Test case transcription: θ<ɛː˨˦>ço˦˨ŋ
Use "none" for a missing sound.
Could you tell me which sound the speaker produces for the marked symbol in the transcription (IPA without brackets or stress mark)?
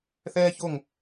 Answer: ɛː˦